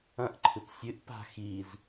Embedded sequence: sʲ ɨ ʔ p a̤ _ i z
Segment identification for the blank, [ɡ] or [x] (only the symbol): x